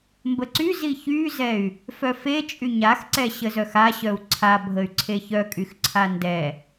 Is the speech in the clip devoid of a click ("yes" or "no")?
no